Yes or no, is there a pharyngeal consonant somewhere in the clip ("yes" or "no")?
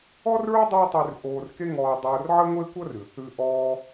yes